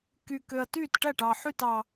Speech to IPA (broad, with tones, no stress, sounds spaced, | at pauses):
k y˨˩ k ø˨˩ ɐ̯ t yː˥˩ t ʈ æ˥˩ ʈ ɑ˨˩ ħ y˥˩ t ɑ˨˩